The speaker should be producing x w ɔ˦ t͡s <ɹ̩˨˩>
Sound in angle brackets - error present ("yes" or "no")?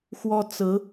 yes